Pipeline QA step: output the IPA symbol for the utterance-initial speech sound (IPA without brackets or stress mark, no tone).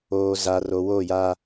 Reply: oː